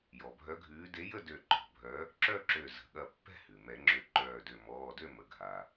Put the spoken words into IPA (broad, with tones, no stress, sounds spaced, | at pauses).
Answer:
j ɔ˩ bʱ œ˨˥ ɡʱ ʉː˨˥ d e˨˥ j ə˥˨ d ø˧˩ ǃ ɔ̤˧˩ bʱ œ˨˥ | ǁ œ˥˨ ǁ ø˧˩ z ə̤˩ ɠ ɐ˧˩ pː ɛ̤˥˨ h ʉ˩ m ɛ˨˩˦ ŋ͡ǁ ø˧˩ ǃ œː˧˩ d ø˧˩ m ɔː˩˧˩ d ø˥˨ m ə˩˧˩ ɡʱ a˩